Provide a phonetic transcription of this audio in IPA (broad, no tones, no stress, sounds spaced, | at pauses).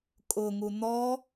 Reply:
kʼ ʊ ŋ u n̪ ɔ